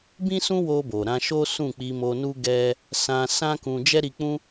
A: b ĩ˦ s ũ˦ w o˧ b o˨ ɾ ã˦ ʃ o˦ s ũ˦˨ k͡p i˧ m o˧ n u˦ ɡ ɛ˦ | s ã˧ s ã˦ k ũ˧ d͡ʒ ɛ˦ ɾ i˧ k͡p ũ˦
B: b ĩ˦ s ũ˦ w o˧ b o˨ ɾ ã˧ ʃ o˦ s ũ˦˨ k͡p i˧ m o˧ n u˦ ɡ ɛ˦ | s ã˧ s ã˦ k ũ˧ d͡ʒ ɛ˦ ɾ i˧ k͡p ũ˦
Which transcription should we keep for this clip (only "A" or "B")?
B